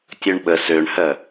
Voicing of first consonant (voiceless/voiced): voiceless